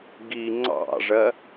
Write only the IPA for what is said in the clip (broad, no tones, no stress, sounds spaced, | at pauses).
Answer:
ɡ i ŋ͡ǀ ɑ̰ ʐ ɜ